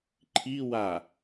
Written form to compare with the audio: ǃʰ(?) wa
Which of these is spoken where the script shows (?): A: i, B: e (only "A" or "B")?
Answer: A